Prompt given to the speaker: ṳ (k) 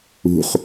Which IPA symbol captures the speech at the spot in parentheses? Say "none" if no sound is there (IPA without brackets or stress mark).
χ